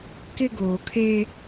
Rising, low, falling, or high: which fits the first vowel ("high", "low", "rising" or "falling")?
high